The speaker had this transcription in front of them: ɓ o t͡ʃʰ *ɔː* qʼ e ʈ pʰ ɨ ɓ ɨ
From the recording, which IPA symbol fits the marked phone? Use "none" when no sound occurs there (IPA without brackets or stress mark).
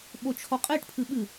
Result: ɔ